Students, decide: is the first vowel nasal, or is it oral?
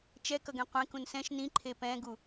oral